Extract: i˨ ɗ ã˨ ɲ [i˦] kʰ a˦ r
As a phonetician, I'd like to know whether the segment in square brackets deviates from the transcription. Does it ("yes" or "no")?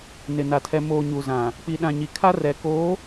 yes